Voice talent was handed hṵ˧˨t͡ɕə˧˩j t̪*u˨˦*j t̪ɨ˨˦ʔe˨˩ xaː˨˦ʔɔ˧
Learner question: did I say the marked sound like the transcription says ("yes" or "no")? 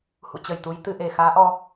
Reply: yes